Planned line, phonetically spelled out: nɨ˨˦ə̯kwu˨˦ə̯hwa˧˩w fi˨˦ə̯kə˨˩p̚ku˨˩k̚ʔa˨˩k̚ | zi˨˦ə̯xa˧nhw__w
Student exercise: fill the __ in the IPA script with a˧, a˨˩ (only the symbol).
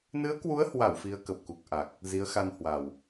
a˨˩